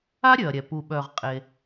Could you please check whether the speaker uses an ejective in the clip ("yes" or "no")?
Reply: yes